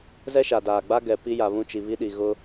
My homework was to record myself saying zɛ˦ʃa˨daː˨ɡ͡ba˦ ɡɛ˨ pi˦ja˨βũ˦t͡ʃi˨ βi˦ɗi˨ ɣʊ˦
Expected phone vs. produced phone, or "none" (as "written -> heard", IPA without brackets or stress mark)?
none